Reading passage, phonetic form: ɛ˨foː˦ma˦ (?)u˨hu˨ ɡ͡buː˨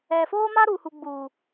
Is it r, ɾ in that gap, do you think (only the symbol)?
ɾ